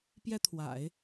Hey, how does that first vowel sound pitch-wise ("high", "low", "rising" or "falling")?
high